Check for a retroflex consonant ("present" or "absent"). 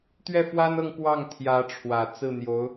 present